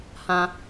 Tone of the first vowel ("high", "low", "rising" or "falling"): high